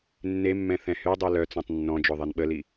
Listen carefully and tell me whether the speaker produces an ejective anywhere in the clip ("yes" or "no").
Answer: no